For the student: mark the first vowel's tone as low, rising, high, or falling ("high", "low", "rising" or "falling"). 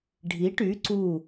rising